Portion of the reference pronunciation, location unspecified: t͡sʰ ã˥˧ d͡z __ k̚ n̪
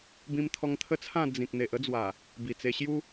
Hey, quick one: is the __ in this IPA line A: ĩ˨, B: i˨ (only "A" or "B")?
A